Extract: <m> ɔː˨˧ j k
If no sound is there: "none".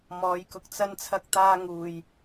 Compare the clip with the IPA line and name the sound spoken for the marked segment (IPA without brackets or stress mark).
m